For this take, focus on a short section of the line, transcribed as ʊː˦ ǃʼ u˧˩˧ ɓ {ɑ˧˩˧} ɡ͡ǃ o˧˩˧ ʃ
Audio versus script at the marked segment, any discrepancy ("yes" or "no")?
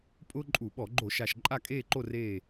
yes